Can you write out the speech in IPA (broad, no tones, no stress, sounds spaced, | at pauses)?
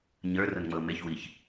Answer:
ɲ ə˞ r ʊ n ŋ͡m ɤ m e ç w i ç